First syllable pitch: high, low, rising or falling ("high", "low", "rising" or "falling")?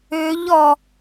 rising